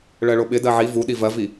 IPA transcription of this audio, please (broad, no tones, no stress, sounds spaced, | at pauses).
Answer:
ɭ ɜ ɭ o ɓ ɪ d ɜ ʕ i v u ɗ i v ɜ v i